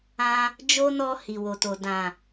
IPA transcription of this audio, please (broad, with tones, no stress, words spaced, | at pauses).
ã˧ | d͡ʒo˦ nɔ˧ hi˨wo˨to˨ dã˨